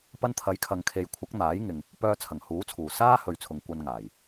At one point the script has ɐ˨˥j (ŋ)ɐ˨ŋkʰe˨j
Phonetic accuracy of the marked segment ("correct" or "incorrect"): incorrect